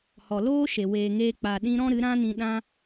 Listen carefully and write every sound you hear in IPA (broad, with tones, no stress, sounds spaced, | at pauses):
h ɔ˨ l oː˦ ʃ e˨ w eː˨ ŋ eː˦ k͡p a˧ ɗ ĩ˦ ɾ ɔ̃˦ ɾ ɨ˨˦ ɾ ã˦ n ĩ˧ ɗ ã˦